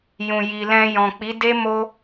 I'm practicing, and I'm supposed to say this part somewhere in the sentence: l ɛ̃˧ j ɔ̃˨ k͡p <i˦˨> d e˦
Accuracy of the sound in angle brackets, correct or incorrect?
incorrect